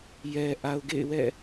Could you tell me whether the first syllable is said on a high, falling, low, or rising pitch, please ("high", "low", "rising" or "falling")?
low